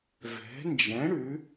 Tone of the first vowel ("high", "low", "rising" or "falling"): rising